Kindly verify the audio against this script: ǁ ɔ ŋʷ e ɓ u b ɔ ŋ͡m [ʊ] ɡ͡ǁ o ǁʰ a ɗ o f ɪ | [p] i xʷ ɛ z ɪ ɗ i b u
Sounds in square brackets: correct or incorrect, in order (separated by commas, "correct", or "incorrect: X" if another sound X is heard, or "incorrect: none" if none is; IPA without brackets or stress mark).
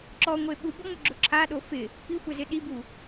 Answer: correct, correct